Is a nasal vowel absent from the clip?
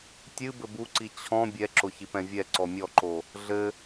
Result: no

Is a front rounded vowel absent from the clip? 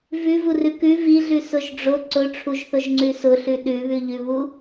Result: yes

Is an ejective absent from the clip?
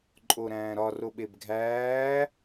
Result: no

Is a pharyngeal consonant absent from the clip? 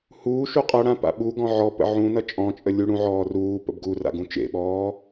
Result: no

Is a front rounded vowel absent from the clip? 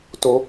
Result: yes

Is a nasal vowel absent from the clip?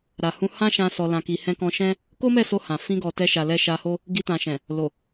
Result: no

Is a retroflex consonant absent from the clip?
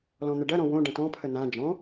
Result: no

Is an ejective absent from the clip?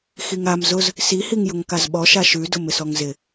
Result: yes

